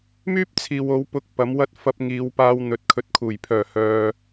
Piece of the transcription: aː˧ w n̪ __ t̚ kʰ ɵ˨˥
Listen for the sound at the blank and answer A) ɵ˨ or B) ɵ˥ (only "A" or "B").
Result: A